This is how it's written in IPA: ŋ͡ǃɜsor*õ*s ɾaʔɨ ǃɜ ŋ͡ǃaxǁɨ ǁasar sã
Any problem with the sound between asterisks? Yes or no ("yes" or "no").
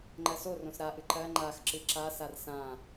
no